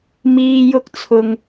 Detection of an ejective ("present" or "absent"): absent